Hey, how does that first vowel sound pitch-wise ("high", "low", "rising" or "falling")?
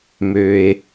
low